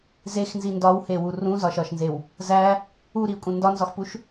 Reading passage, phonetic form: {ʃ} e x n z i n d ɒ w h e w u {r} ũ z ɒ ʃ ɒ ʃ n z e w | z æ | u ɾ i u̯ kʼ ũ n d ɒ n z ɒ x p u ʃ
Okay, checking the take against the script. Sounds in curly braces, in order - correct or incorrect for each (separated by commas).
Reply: incorrect, correct